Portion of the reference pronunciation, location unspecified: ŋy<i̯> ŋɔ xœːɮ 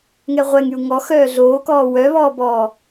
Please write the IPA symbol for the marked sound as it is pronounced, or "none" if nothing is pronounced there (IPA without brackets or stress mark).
u̯